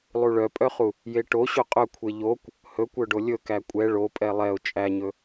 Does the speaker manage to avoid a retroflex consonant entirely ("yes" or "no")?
no